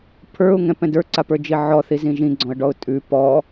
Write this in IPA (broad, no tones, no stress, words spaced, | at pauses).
pʰə˞ʊ̯ŋɛ̃pɛ̃d ə˞ǀapə˞d͡ʒi ʕɔθizĩ ʒĩɡ͡ǀɔ̃ə̯ɖɔʊ̯ tʼʉ pɔ